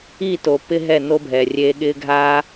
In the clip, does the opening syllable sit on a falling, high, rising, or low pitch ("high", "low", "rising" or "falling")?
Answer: falling